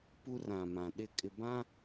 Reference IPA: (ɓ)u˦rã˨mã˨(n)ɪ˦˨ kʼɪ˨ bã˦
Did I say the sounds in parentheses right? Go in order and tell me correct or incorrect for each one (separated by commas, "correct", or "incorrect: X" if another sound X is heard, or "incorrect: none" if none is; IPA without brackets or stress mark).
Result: incorrect: p, incorrect: ɗ